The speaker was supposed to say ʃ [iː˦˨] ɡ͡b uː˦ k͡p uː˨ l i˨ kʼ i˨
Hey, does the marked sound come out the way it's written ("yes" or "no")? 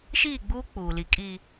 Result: yes